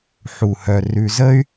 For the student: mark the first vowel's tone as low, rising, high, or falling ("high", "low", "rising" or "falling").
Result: low